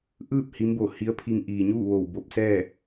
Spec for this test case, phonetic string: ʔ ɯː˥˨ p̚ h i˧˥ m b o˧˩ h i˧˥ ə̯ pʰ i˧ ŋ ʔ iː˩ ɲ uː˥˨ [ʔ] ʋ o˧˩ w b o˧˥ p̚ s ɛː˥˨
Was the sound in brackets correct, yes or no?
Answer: no